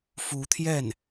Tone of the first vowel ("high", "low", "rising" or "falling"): rising